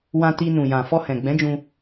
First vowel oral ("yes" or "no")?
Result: no